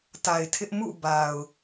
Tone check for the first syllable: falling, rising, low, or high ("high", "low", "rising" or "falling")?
low